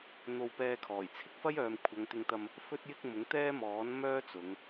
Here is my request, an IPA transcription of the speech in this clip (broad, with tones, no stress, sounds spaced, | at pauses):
n̪ o˧ w p ɛː˧ kʰ ɔː˨˩ j t͡sʰ ɪ˧ k̚ f ɐ˥ j œː˨ m kʷʰ ɐ˨˧ ŋ t̪ ɪ˧ ŋ t̪ ɐ˧ m | f ɵ˥ t̚ j ɪ˥ k̚ m ʊ˨˥ ŋ t̪ ɛː˥ m ɔː˨˥ n m œː˥ t͡s ʊ˨˧ ŋ